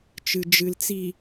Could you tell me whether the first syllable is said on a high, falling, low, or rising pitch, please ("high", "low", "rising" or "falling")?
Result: low